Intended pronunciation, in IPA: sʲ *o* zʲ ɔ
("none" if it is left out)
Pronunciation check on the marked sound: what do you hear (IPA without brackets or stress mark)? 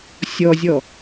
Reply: ɔ